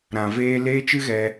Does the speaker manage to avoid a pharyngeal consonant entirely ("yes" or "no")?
yes